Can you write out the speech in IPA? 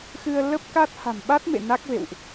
x ɨ˧ ə̯ l ə˦˥ p̚ k a˦˥ t̚ h a̤˨˩ m ɓ a˦˥ t̚ m ḛ˧˨ n a˦˥ k̚ v ḛ˧˨ w ʔ

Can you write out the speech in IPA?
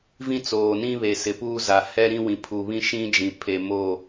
v ĩ˦ t͡s oː˨ n ĩ˦ β e˨ s ɪ˨ p uː˦ z a˨ h ɛ˦ ɾ ĩ˦ w ĩ˨ pʰ u˨ β ĩ˦ ʃ ĩ˦ d͡ʒ ĩ˨ pʰ e˨ m o˦˨

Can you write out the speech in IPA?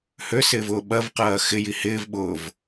h ø s ɪː v ʊː ɓ ɐ v q ɐː x ɪ j i h ɪː v ɓ ʊː v

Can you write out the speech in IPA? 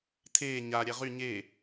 tʰ eː ɲ a ɾʲ ɛ ʁ y ɲ e

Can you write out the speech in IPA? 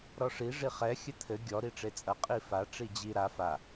ɾ ɔ ʂ i ʐ i χ ɛ xʲ ɘ t̪ʰ ɘ ɡʲ ɔ ɾ i ʈ͡ʂ e t͡sʼ ɐ qʼ i f a ʈ͡ʂ i d͡ʑ i ɾ a f a

